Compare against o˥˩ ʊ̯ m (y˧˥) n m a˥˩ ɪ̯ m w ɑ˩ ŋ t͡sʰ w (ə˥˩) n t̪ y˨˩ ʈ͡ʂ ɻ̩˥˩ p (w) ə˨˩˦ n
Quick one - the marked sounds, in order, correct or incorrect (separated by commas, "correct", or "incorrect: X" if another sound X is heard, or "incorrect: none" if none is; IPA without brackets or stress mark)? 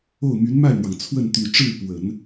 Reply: correct, correct, correct